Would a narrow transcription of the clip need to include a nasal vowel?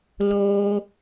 no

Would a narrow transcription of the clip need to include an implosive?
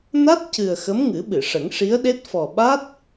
yes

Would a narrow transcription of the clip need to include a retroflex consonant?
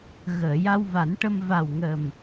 yes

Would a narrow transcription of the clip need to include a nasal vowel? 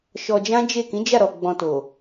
yes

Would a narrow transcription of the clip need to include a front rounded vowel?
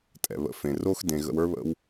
no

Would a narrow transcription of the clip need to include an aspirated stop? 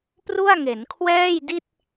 yes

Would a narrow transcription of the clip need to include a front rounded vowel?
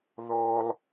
no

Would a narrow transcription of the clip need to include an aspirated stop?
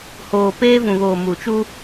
no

